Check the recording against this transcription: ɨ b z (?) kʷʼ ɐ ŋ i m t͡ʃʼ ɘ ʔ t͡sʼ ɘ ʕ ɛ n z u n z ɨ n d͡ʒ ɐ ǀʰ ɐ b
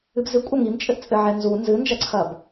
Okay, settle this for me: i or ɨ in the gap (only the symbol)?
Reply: ɨ